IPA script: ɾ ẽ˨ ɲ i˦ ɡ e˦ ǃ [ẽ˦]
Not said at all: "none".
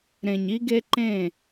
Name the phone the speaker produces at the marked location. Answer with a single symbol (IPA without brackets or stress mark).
ẽ˦˨